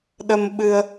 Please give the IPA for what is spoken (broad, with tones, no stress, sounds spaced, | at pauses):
ɗ ə˧ m ɓ ɨ˧ ə̯